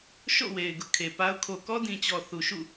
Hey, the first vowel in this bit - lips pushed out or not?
yes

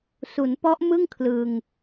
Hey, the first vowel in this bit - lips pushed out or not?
yes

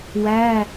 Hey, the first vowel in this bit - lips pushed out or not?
no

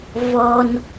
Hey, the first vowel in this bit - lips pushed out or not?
yes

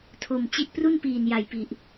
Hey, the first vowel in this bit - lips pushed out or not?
yes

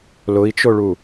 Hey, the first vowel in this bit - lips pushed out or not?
yes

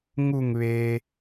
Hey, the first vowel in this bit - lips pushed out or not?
yes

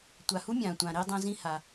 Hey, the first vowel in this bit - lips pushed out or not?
no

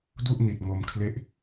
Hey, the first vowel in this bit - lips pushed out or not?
yes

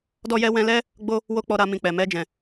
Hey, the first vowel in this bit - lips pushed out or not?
yes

